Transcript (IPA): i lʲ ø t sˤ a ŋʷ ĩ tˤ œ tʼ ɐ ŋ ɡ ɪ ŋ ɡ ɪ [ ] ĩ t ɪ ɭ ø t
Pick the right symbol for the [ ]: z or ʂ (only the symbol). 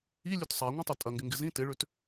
z